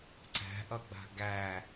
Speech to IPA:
ǀæ̤ʔʌɡ͡ba̤ ɡæ

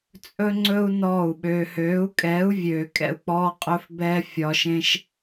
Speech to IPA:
t͡sʼɵ˦ŋ͡ǀɵ˦u̯ nɔː˦˨u̯ɓøː˧ høː˨˦u̯kʼɛː˨˦u̯vʲøː˨ kʼɛ̰˦˨u̯k͡pɔː˦ qʼɵ˦fbɛː˦fʲɒː˧ʃ ẽ˦ʃ

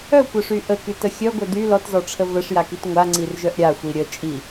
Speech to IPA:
œkʷœʂy ʔəkytə xʲœɡʷœ dy lɔtzɔʈ͡ʂʰə vəʂjakit ŋʷaŋ͡ǀirʒœʔ ɾʲaxʷi ɾʲə t͡ʃʼi

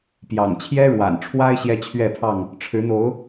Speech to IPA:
pjɑ̰˨˩ŋt͡ɕʰjɛ˦ɻwa̰˨˩nʈ͡ʂʰwa˦ɪ̯ ɕjɛ˦t͡ɕʰɥɛ˥˨pʰɑ˥˨ŋ | ʈ͡ʂʰɻ̩˨˦n̪o˨˦ʊ̯

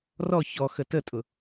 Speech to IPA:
rɔ çɔxə tətʼʊ

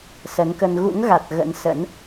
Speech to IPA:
sə˨˦nkə˧n ɣṵ˧˥ŋɣa˨˩t̚ ɣə̰˧˥nsə̰˧˥n

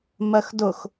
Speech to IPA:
mɜxdʊx

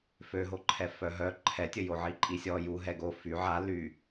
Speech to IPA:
føɦoǃʰɛ fœɦœ ǃʰɛtʲə joʕiǃʼisʲɔ ju ɦɛɡo fy ʕa ly

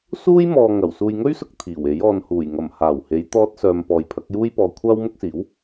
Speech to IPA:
suː˥j mɔː˨ ŋɐ˨˩w suː˨jŋɵ˥ɥsʊ˧k̚ t̪ʰiː˨˩we˨˥j ɔː˨nhuː˨˩jŋɐ˨˩m haː˨˩whe˨˧jt̪ɔː˧t̚sœː˨m pɔː˨jpʰɐ˨˥k̚juː˥jpɔː˧ kʷʰaː˥wmʊ˥k̚siː˨˥w

